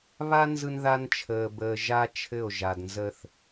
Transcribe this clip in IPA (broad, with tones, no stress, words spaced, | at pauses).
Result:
βa˦ nzɯ˦nða˦nt͡ʃʰəː˨ bəː˨ʒa˦ t͡ʃʰɘ˦˨o̯ʒa˨dnzə˦θ